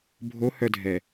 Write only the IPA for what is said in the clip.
bʱ o h œ dʱ ɛ

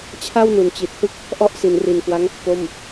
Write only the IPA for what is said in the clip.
t͡ɕʰ a˥˩ w n u˩˦ n t͡ɕ i˨˩ t̚ h ɯ˥˩ k̚ | ʔ ɔ˥˩ ʔ s i˩˦ n r i˨˩ n k w a˦˥ ŋ | p o˥˩ m

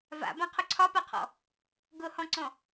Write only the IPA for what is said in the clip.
v a̰ b ã qʰ ʊ ǀʰ ɒ p a qʰ ɔ̰ | ɡ ʊ h ɔ̃ ǀ ɔ̃

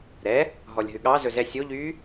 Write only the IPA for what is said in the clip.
ɾ ɛ | ɦ ɔ lʲ ɦ ʉ ɠ ɑ z ɵ z ɛ sʲ o ʎ yː

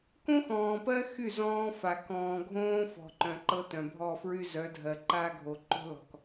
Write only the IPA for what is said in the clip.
k õ˦ x ɔ̃ː˨ p ɜ˦ x y˦˨ z ɔ̃ː˦ f a˨ k ɔ̃ː˨ ɡʱ õː˦ f ɔ̤˨ ǃ œ̃˨ ǃ ɤ˦ t œ̃˨ bʱ ɔ˦˨ f ɹ y˦ z œ˨˦ dʱ ɜ˨ ǃ a˦ ɡʱ o˨ ǃ o̤˦ l ɔ̤˨ k

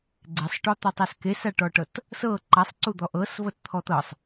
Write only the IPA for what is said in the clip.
ɡ͡ǀ e sˤ ʈ ɔ t̪ ɔ tˤ a s k e s a ʈ ɔ ʈ ɤ t | s ɤ ǃ a sˤ ǀ u d̪ ɔ ʔ ɤ s v ɤ t t̪ʰ ɔ t̪ ɤ sˤ

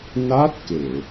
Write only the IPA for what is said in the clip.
n a˦˥ t̚ k e˨˩˨

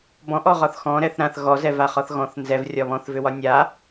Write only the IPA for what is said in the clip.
b ɔ̃ ʔ ɔ ʁ ɒ θ x ɔ̃ ɾ ɛ θ ɾ ã θ ɣ ɔ z ɛ v a χ ɒ θ ɣ ɔ̃ θ n z ɛ v rʲ ɒ β ɔ̃ θ v ʏ w ɒ nʲ a

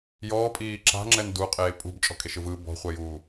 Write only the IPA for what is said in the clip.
j ɔː pʼ iː ǁ a̤ ŋ͡ǁ ɛ n d u qʼ eː pʼ ṳ b t͡ʃʼ ɔ̤ kʼ e ʃ ɯ v ɯ b ɔ̤ χʷ ɛ j uː

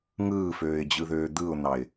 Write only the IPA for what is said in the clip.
ŋ ɯː f øː ɪ̯ d͡ʑ ɯ ð øː d̪ ɯ ʊ̯ n̪ ɑ ɪ̯

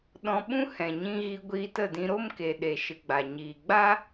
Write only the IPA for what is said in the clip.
ɗ ɔ̃˧ ɓ ũ˦ h ɛ̃˨ ɲ ĩ˧ ɣ i˧ ɡʷ iː˧ t ə˦˨ d ĩ˧ ɾ o˦ m k e˨ ɗ e˨ ʃ ɨ˨ ɡ͡b a˨ ɲ iː˨ ɡ͡b a˦

